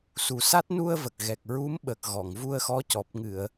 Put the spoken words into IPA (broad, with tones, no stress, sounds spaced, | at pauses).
s u˨˩ s a˦˥ t̚ n u˧ ə̯ v ə˨˩ k̚ ɣ ɛ˨˩ k̚ ɹ u˧˥ m ɓ ə˨˩ k̚ ɣ ɔ˨˩˨ ŋ v u˧ ə̯ x ɔ˧˥ c ɔ˨˩ p̚ ŋ ɨ˨˩˨ ə̯